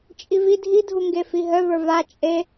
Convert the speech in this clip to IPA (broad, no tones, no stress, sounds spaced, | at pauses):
t͡ʃʼ i v i dʱ i dʱ u ŋ ɡ e f i ɦ œ v ə˞ v a t͡ʃʼ e